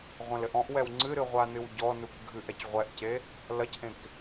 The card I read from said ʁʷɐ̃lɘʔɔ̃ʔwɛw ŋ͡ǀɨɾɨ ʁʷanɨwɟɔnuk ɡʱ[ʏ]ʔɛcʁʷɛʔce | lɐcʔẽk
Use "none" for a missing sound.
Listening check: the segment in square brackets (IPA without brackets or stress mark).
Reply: ɨ